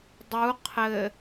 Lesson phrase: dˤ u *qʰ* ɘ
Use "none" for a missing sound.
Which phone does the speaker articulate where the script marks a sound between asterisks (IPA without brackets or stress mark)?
qʰ